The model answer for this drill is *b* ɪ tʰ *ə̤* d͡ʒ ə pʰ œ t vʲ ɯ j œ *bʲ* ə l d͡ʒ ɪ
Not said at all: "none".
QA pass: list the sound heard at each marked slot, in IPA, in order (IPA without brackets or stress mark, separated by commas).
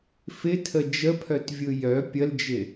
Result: f, ə, pʲ